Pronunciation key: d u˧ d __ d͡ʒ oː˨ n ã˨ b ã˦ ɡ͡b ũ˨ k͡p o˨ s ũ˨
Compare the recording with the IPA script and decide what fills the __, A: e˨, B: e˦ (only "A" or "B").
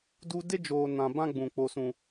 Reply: B